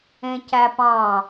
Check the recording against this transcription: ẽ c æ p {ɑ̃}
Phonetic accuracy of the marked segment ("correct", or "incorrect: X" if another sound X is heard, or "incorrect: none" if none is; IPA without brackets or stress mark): correct